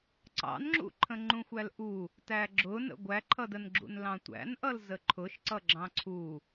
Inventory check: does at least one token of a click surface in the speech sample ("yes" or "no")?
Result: yes